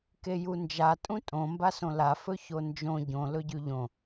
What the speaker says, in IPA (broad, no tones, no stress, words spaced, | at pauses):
kejund͡ʒa tʼũtʼõ mbasõla fɵçond͡ʒõ ɟõ lɵɟʉʎõ